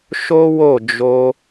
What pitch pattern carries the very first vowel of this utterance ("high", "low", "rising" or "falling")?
high